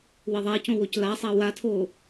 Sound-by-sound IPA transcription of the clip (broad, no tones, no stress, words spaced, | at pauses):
wɪðˤacõwoc lasˤa watʰo